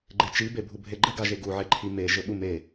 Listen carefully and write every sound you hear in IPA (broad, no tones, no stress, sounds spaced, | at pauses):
ɡ͡ǃ e t͡ʃ i b e bʱ u bʱ e ɡ͡ǃ ɘ ɡ a ʒ e ɡ u ʕ e ǃʰ i m e ʒ ɘ ɓ u m e